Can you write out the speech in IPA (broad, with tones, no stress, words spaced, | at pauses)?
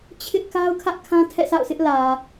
t͡ɕʰɪ˦ʔka˦ʊ̯ kʰä˦ʔkʰã˦ tʰɛ̰˦˨sʰa̰˦˨ʊ̯sʰɪ˦ʔ lä˨